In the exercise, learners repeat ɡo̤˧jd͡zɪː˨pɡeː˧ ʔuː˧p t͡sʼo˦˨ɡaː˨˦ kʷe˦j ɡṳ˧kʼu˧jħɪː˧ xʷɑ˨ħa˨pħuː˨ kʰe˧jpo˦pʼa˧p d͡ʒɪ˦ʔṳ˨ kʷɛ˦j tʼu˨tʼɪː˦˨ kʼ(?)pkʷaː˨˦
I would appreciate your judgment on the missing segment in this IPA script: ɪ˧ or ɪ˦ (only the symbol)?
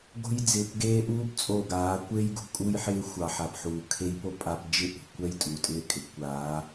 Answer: ɪ˧